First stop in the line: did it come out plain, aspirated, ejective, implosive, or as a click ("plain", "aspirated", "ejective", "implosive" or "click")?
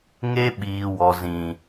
implosive